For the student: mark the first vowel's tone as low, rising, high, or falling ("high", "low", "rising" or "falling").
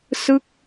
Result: falling